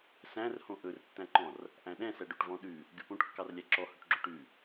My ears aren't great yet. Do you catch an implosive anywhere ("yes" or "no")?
yes